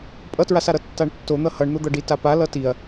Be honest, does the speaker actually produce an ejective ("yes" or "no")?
yes